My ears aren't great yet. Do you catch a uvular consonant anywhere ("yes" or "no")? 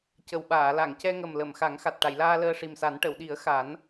no